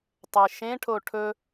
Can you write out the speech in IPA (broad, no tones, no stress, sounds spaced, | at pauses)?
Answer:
tˤ e ʃ ẽ ʈʰ o ʈʰ ɵ